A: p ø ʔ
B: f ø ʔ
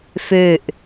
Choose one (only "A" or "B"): B